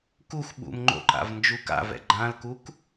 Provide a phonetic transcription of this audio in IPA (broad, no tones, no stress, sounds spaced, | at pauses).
k u x ɓ ṵ m ŋ͡ǃ o̰ ǃ a̰ v n d͡ʒ u k a̰ v ɛ̰ ɡ͡ǃ ã l k u k